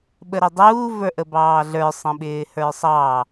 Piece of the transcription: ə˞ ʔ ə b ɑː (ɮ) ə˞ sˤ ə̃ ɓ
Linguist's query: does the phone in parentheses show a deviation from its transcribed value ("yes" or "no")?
no